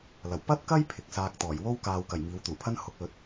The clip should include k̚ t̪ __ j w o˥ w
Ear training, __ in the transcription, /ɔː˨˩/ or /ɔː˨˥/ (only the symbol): ɔː˨˩